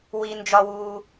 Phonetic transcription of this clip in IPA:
w i˨ n d͡ʒ ɒ˨ w uː˨

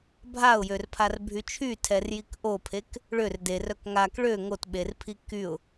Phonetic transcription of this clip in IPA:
bʱ a ʊ̯ j ø r pʰ a r bʱ y t͡ʃʰ y tʰ ɛ r j i k ʔ o pʰ e k | ɭ ø r d e r œ k ŋ a k ɭ ø ŋ o t ɓ e r pʰ i k y ʊ̯

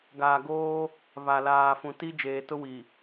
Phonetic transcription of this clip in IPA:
ɡ aː˨ ɡ oː˦ | β a˨ l aː˨ f ũ˨ t i˦ d͡ʒ eː˨ t ʊ˦ w i˨

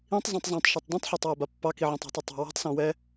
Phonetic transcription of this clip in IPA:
ĩ tˤ zˤ õ tˤ zˤ õ tˤ ʃ ɔ tˤ d ũ tˤ ħ a tˤ w ɛ b a pː ɑ k i ʕ ɔ̃ tˤ i̤ tˤ ɛ tˤ ɑ̤ w a̤ tˤ s ɔ̃ w ɛ

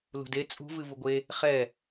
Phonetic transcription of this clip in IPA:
l ṳ d e t͡sʼ ṳ v ɨ v u ɡʷ e | χ ɛ

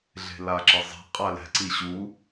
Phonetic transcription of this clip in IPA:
ɮ e̤ l a ǁ ɪ zˤ ɛ̤ qʼ a l ɛ̤ ǀ i ɕ u

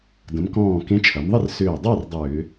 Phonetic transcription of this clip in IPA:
d ə̃˩˧ m k ɔ̃ː˧˩ k ẽ˨˥ t͡ʃʰ ɐ˩˧ m ðˤ ɪ˥˨ r s ʏː˧˩ dˤ a˥˨ r dˤ ʏː˧˩˧

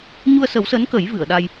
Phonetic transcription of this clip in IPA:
ɲ u˧ ə̯ s ə˨˩˦ w s əː˧˥ n k ə˨˩˦ j v ɨ˨˩˨ ə̯ ɗ a˧ j

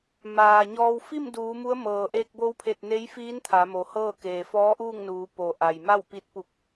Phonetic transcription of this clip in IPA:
m aː˩ ɲ ɔː˧ w f i˥˨ m d uː˩˧ m u˧˥ ə̯ m ɤː˩ ʔ eː˧ k̚ b o˧˥ w pʰ e˧˩ t̚ n e˧˥ j f iː˧˥ n t̪ʰ a˩˧ m o˩ h ɤː˥˨ k eː˩ f ɔː˧˥ ʔ uː˥˨ ŋ n uː˩˧ p o˩ ʔ a˩ j m a˥˨ w p i˧ t̚ p u˧˩ k̚

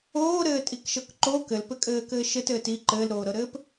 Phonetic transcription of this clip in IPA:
oː ɾ ɘː tʼ i k ʃ ɤ k ǃ o k ɘ l p ɘ kʼ ɘː k ɘː ʃ ɘ t ɘː t i ǃ ɘː l ɾ oː ɾ ɤ ɾ ɘː p

